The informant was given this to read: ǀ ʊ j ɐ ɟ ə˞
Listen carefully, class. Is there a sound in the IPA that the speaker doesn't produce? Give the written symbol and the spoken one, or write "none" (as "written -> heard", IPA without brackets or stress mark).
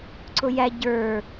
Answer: ɐ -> æ